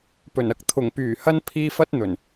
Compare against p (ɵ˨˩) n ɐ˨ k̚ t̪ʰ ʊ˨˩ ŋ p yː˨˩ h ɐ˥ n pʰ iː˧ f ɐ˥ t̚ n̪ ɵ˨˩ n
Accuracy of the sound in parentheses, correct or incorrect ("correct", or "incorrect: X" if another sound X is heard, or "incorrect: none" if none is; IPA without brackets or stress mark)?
correct